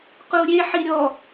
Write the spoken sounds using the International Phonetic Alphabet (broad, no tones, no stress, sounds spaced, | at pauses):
q u ɾʲ e ħ i ɾʲ ɔ